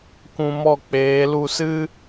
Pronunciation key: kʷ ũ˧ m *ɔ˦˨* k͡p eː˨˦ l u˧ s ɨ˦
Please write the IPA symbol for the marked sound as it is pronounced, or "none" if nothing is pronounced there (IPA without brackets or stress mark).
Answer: ɔ˦˨